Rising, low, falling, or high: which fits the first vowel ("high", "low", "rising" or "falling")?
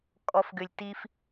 low